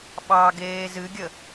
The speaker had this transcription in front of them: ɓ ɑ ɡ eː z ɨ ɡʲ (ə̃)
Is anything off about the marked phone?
yes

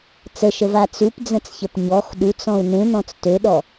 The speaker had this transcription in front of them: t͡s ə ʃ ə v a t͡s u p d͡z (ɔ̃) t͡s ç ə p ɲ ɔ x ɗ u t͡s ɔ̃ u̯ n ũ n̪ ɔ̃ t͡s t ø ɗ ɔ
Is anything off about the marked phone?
yes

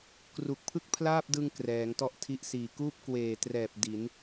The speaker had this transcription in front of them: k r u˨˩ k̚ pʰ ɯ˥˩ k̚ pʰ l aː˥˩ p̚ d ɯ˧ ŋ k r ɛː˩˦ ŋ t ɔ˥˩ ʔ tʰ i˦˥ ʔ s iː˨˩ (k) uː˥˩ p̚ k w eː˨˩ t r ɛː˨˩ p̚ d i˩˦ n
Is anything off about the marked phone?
no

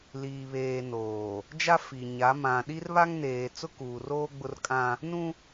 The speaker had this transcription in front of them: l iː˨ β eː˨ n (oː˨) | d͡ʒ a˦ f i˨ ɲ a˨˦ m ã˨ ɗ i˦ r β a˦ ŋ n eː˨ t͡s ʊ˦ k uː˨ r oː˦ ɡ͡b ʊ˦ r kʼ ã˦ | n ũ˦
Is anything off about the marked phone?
no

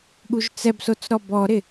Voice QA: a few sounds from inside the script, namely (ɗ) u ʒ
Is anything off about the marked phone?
yes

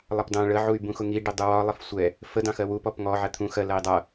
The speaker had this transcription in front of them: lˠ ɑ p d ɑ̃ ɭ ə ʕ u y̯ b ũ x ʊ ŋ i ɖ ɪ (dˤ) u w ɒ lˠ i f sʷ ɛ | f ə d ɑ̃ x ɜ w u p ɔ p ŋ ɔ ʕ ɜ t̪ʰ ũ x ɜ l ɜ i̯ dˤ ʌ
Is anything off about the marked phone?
no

